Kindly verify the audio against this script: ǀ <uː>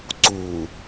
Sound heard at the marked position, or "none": uː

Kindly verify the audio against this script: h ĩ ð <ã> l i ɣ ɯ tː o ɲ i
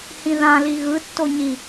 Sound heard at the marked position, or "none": ã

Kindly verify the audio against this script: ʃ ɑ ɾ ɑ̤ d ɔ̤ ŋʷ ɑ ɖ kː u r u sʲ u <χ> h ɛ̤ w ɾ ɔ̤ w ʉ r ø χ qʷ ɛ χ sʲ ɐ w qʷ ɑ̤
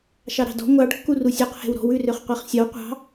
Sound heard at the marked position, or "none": q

